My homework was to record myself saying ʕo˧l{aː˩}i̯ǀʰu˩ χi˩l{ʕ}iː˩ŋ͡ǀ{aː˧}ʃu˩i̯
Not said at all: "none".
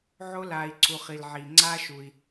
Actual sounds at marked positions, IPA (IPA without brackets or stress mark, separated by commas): aː˩, ʕ, aː˧